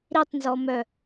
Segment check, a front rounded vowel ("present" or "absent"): present